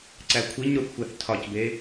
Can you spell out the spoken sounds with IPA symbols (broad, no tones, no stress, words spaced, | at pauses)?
ǀækʷʰiɲɾuθ xʷæθtʰɒcbe